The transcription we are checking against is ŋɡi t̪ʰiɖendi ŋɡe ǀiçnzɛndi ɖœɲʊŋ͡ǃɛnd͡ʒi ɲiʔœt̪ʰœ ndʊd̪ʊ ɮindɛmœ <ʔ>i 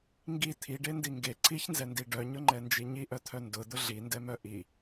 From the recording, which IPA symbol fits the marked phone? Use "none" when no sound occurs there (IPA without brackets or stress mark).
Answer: ʔ